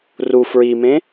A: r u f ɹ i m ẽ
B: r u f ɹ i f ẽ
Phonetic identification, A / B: A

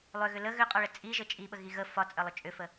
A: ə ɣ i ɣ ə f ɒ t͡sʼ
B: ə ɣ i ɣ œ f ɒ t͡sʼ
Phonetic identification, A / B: A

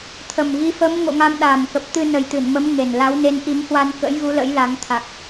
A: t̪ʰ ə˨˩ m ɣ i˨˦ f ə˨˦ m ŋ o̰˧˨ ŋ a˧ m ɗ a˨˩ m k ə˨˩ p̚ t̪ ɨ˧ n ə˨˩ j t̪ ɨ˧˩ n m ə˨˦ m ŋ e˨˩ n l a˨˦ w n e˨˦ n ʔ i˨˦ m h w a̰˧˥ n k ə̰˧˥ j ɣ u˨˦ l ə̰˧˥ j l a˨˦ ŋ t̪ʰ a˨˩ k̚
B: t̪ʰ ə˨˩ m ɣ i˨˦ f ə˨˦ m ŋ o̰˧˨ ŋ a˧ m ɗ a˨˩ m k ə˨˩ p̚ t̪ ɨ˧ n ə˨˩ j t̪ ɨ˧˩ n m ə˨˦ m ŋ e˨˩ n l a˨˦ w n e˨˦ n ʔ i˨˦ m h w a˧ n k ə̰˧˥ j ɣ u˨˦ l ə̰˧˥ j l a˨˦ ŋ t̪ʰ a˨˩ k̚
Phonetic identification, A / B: B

